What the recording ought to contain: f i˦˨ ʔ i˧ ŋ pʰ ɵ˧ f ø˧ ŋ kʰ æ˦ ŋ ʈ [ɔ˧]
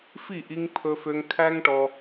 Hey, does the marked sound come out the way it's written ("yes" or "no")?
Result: yes